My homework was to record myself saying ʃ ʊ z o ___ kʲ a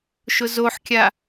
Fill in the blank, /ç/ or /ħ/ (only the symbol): ħ